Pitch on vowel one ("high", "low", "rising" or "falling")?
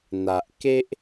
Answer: low